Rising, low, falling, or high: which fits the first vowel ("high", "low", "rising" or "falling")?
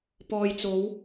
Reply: low